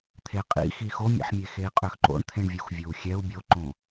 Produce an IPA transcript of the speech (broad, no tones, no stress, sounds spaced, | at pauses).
t̪ʰ e qʼ ḭ x i x o mʲ ḛ ħ mʲ e x e i̯ qʼ ø x ǃ o̰ ɳ t̪ʰ ẽ ɳ vʲ u x vʲ o u̯ xʲ ɛ u̯ bʲ o ǃ õ